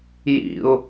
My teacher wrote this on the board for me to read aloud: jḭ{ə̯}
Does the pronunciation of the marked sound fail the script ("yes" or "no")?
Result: yes